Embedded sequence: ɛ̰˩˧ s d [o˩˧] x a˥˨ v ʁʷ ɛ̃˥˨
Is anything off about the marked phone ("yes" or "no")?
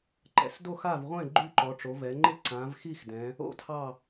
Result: yes